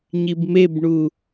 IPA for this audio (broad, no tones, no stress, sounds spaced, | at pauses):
ɲ i b m e b ɳ u